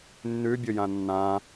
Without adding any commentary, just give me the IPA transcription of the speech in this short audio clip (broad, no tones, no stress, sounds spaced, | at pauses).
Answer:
nː ʉ bʲ ʊ j ã nː ã